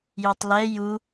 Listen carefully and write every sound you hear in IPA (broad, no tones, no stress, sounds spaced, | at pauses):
j u tˤ l ɛ j u